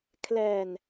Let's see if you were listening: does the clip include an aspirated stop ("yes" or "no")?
yes